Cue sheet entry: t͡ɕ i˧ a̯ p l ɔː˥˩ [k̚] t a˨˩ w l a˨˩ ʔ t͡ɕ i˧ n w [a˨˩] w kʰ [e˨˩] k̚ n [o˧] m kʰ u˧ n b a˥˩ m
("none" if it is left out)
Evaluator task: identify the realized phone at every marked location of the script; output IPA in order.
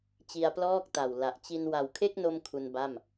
k̚, a˨˩, e˥˩, o˧

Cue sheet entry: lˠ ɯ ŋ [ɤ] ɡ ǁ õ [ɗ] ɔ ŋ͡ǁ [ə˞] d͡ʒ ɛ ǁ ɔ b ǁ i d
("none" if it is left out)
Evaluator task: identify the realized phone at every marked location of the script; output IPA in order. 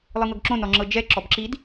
ɤ, n, ɤ

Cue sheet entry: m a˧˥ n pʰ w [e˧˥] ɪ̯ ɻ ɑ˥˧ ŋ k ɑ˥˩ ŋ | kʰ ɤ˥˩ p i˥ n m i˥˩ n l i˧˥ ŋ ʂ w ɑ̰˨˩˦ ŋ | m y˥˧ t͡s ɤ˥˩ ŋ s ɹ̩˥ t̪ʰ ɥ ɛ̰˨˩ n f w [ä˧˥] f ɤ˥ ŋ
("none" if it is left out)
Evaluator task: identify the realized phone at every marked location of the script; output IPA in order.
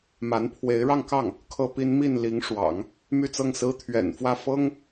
e˧˥, ä˥˩

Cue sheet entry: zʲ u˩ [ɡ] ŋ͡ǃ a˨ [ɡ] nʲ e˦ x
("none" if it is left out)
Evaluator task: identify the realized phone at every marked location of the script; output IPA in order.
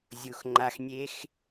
x, x

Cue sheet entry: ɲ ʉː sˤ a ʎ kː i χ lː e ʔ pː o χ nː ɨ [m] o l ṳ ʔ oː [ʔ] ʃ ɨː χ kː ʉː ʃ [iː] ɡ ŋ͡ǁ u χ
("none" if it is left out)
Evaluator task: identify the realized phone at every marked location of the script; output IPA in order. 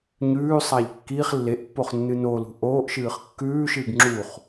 n, ʔ, ɨː

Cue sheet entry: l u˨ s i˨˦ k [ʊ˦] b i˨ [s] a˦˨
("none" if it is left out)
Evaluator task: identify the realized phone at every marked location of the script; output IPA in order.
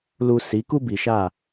u˦, ʃ

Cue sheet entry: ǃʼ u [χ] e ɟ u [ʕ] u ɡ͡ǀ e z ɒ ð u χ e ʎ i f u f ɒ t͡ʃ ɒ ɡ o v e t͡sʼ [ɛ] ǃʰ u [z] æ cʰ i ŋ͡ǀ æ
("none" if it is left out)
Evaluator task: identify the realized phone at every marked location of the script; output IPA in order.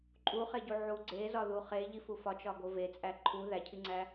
χ, ʕ, æ, ð

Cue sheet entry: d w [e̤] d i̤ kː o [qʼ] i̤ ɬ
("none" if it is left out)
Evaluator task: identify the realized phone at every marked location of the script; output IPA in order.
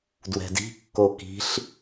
ɛ̤, k

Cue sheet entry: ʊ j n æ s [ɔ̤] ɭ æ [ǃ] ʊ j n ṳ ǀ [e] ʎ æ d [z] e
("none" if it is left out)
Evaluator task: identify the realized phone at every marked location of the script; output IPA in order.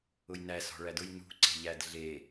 ɔ̤, d, e̤, ɮ

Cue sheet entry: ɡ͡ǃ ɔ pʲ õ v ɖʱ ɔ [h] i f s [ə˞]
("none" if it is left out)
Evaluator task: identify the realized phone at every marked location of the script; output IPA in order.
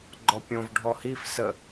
h, ə

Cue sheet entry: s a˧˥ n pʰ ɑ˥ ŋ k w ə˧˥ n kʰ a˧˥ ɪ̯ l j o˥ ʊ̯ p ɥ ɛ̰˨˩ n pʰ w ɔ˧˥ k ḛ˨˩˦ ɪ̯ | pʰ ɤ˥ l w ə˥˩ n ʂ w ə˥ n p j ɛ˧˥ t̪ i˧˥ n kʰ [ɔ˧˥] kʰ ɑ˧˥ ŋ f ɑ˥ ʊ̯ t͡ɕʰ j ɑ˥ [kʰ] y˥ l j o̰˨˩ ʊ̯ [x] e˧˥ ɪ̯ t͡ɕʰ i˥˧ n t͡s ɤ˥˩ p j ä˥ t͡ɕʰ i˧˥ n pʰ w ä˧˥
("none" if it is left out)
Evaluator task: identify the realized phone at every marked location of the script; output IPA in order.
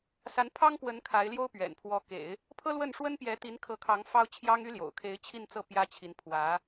ɤ˧˥, ŋ, kʰ

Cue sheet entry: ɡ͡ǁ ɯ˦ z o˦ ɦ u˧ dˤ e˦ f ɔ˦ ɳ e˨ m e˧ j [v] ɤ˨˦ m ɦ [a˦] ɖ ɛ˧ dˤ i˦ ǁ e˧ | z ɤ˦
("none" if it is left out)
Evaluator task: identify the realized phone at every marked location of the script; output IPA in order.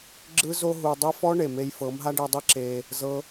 f, a˦

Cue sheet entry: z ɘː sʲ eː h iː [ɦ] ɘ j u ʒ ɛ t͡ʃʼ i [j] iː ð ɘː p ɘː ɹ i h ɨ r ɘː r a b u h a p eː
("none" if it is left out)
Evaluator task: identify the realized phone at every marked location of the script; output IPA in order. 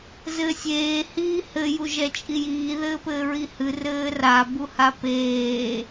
h, j

